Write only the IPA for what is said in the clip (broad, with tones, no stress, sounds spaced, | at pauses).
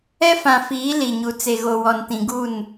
ɛ˦ f ã˨ f iː˨˦ l i˨ ɲ u˨ t͡s e˨ ɣ o˨ w ɔ˨ n t ĩ˨ ɡ u˦˨ n